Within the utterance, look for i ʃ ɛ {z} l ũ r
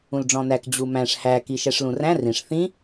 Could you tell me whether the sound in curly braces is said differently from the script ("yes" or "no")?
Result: yes